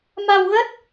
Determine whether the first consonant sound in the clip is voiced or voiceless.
voiced